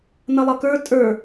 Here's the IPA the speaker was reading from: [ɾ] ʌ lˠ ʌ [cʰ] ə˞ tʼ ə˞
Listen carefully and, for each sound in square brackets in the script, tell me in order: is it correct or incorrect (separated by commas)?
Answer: incorrect, incorrect